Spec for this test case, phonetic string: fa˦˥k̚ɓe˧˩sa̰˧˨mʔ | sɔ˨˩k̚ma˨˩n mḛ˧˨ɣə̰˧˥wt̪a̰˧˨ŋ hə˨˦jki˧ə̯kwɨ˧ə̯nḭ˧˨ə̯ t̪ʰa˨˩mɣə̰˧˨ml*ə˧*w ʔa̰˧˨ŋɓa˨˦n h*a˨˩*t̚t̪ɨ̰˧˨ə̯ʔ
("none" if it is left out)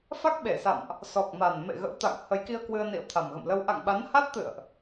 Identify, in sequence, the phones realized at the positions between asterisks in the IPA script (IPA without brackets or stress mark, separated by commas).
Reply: ə˧, a˦˥